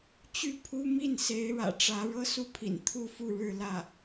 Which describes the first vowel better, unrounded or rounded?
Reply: rounded